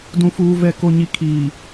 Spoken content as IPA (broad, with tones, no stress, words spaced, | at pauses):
dũ˨fuː˨vɛ˨ ko˨ɲi˨ kʰiː˨